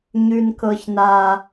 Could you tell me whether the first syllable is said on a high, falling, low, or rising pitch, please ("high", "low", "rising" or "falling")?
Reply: low